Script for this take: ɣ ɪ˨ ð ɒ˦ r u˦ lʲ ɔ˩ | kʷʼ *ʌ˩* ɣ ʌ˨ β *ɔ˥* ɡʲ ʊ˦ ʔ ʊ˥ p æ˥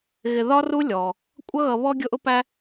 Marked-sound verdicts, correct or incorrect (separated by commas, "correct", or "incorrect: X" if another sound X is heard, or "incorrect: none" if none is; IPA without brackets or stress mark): incorrect: ʌ˦, correct